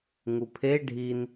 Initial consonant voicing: voiced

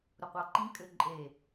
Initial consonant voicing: voiced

